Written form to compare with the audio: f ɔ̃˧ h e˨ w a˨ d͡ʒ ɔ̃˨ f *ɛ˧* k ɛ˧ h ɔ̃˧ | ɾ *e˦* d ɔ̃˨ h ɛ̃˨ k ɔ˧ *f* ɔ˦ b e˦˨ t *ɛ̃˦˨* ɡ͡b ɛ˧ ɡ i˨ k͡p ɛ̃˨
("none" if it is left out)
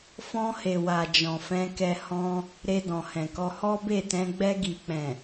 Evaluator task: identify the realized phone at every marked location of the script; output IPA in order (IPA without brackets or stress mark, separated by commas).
ɛ̃˧, e˧, h, ɛ̃˧